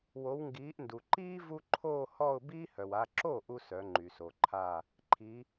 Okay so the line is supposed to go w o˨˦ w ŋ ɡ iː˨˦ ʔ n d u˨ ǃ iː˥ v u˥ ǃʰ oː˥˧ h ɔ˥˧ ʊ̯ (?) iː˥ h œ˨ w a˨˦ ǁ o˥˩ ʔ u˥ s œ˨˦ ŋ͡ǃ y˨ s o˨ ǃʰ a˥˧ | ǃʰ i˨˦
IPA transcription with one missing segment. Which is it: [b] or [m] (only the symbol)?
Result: b